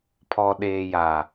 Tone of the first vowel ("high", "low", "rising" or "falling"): low